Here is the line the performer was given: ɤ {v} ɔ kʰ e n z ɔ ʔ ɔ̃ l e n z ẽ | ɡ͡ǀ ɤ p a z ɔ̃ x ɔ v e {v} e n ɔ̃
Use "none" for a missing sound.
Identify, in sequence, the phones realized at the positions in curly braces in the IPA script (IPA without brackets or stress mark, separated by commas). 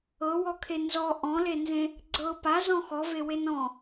w, w